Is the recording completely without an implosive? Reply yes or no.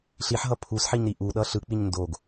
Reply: no